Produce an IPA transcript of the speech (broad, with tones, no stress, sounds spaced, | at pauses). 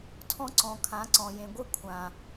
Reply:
tʰ ɔ̃˦ ǀ ɔ̃˨ kʰ ã˨˦ ǀ ɔ̃˨ j ẽ˨ ɡʷ ɨ˦˨ kʷʰ ã˨